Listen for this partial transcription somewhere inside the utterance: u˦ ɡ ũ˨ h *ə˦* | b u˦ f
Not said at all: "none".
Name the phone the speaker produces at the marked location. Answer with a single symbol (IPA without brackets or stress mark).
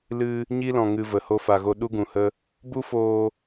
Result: ə˦